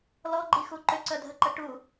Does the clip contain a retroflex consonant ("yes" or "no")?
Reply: yes